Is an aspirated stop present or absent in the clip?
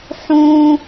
absent